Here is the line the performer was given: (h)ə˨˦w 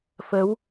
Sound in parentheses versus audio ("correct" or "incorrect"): incorrect